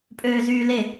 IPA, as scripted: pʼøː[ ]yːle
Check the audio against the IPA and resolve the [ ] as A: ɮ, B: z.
B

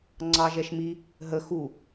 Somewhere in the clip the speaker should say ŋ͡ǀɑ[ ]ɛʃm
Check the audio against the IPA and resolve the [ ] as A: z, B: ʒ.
B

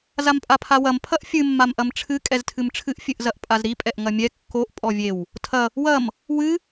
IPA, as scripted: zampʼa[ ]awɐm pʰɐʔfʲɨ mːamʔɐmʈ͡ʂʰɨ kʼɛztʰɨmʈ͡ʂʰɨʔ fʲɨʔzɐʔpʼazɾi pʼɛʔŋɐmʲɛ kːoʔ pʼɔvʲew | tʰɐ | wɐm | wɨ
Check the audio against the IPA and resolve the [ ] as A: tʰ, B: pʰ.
B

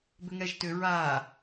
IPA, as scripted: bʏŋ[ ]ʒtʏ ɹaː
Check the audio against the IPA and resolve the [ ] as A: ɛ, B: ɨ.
A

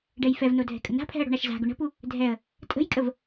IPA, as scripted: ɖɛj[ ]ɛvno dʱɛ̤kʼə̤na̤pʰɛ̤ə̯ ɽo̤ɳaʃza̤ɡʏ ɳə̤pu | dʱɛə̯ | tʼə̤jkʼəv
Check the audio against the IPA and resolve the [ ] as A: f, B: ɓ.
A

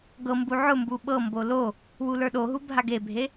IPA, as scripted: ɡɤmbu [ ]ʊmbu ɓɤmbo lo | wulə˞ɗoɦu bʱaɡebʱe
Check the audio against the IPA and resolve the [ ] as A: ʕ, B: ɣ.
A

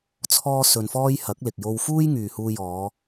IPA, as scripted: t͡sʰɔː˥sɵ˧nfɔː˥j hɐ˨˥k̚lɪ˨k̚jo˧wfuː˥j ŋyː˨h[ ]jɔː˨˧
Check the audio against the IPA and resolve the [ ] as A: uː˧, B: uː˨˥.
A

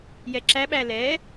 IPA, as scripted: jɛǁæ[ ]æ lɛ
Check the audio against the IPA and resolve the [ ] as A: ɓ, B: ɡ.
A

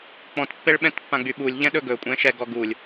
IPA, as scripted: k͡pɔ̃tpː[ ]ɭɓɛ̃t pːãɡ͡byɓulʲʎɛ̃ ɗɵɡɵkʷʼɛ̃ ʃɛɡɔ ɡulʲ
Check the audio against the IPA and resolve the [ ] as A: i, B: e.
B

